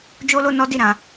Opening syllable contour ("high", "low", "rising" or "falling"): high